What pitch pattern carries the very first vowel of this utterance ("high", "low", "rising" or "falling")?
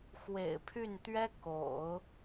low